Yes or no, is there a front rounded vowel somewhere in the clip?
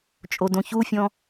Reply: no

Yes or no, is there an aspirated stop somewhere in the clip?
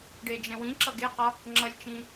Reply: no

